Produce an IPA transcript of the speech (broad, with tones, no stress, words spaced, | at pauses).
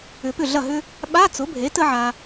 ʏ˨˩˦pʏ˥˩ɮɐ˥˩ɦʏ˥ | ɓa˧˥˧t͡sʊ˩˥bʱe˩˥ tə˥ʕa˨